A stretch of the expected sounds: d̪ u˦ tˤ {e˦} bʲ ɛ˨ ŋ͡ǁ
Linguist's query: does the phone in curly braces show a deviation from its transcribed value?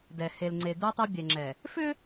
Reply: no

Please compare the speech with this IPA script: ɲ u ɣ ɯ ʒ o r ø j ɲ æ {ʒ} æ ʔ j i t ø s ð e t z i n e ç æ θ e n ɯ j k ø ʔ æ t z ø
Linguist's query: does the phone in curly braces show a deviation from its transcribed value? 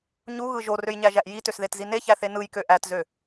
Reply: no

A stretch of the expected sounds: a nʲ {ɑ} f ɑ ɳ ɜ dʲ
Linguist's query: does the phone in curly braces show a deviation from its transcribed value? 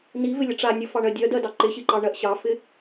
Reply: yes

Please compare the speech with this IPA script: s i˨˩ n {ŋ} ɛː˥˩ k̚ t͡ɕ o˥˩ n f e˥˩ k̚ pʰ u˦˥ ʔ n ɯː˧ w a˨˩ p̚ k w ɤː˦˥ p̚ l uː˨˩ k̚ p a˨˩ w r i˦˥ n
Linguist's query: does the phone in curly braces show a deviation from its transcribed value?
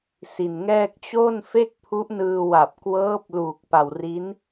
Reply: no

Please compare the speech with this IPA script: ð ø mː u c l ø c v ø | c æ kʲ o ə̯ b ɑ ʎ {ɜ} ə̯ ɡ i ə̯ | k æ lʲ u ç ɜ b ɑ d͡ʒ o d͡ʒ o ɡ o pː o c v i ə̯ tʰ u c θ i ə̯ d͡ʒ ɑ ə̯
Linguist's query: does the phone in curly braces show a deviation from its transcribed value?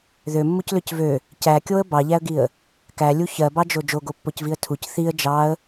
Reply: yes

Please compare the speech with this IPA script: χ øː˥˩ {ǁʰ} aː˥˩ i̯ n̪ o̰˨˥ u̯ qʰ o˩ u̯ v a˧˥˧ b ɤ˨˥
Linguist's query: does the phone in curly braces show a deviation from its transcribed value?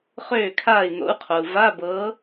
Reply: yes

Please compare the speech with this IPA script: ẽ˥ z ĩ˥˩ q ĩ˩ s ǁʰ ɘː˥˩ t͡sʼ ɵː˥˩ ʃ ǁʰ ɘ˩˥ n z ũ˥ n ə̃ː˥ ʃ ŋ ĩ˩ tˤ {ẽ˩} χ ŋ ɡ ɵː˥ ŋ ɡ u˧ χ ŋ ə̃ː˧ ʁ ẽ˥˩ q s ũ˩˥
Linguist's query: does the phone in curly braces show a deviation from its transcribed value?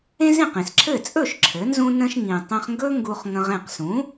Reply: yes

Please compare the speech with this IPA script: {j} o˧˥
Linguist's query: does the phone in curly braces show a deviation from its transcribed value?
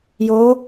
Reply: no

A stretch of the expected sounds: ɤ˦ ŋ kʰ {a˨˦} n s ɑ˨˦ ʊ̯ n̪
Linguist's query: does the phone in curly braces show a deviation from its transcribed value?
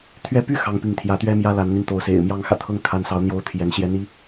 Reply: no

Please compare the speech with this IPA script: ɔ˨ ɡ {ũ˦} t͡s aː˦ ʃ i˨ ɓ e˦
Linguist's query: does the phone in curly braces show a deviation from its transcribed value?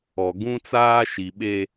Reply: no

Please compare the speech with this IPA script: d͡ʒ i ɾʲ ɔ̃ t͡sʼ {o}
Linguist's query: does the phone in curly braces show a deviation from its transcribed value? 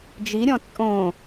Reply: yes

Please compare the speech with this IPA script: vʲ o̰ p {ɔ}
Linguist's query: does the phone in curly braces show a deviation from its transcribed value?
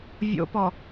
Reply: no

